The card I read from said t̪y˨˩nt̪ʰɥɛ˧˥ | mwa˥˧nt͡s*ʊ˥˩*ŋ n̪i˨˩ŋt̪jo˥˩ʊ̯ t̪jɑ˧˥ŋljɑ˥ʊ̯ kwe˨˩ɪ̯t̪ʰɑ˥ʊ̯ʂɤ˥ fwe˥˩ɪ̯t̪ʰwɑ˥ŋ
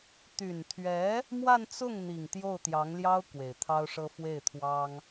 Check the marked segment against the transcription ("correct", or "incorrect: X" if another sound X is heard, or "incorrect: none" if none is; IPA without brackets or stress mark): correct